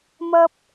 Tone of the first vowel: high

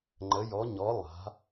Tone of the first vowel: rising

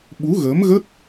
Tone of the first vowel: rising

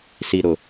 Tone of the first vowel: low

